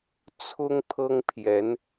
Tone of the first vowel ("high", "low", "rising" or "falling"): high